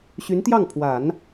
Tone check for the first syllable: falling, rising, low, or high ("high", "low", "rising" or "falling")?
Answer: rising